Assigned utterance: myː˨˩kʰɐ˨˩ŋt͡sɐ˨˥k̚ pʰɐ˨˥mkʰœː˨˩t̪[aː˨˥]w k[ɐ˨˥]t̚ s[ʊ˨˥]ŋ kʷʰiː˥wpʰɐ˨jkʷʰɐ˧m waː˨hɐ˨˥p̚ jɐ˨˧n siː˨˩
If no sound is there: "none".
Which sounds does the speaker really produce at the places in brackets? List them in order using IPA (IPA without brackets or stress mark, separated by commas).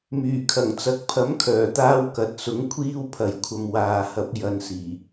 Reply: aː˧, ɐ˨, ʊ˨˥